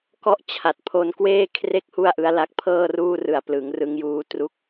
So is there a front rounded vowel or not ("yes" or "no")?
no